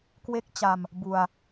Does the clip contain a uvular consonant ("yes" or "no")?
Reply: no